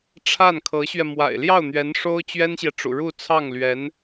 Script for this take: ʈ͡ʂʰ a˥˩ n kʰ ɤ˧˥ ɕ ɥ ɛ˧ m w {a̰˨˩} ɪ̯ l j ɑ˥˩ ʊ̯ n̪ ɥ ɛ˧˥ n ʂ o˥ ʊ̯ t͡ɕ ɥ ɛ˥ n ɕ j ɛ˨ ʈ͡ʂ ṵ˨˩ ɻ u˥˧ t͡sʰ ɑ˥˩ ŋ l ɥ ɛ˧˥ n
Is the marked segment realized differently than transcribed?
no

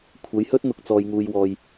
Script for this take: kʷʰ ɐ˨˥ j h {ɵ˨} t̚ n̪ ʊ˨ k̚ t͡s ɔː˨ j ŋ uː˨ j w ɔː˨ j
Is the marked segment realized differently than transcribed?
yes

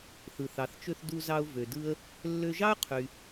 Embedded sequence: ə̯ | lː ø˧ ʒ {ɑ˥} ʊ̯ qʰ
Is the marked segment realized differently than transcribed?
no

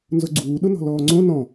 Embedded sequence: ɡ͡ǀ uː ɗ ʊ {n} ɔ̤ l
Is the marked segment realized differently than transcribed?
no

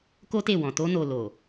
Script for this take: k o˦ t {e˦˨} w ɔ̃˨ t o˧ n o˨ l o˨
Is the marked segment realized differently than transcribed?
no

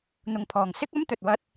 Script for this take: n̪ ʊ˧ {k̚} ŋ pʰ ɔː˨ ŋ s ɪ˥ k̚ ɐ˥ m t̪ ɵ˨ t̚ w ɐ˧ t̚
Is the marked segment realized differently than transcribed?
yes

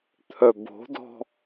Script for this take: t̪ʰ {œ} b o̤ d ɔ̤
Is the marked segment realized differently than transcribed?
no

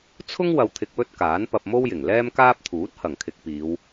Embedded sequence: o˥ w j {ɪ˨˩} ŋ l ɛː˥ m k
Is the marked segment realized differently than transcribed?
no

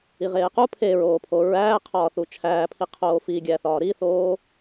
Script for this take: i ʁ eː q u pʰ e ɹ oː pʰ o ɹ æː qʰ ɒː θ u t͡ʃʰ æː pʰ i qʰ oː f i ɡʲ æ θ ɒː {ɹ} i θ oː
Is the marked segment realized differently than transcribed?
yes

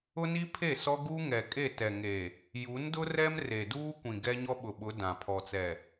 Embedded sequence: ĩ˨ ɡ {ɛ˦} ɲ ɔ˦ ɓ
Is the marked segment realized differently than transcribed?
no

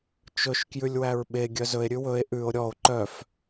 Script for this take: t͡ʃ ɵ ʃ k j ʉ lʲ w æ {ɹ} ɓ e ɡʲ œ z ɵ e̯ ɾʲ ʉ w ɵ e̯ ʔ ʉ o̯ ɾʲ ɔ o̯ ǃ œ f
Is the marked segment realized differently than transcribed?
no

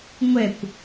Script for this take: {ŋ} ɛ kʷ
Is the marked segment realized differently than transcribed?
yes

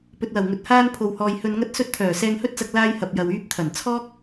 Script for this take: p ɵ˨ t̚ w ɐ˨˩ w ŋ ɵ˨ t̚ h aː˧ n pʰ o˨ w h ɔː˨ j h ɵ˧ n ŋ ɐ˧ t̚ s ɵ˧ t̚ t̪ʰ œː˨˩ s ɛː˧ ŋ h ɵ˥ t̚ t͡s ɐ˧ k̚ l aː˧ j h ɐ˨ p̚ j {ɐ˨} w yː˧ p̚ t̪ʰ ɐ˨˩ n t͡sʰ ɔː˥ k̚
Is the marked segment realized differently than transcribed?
no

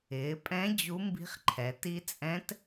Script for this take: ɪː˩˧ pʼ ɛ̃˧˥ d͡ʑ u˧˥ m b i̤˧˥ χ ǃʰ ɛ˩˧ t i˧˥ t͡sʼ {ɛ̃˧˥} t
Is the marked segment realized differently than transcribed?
no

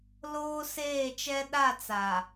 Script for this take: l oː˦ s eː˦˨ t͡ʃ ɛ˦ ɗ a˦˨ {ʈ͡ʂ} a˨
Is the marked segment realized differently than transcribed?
yes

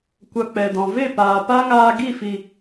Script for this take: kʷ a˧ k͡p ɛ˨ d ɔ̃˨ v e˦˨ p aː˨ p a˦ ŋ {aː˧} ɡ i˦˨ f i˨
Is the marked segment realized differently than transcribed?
no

